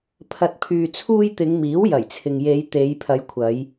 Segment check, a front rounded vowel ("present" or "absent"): present